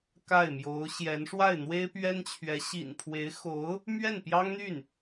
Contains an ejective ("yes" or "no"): no